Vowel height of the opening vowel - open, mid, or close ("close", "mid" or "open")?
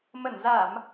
mid